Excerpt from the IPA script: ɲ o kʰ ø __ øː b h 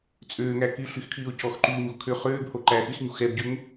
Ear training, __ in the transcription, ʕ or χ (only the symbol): χ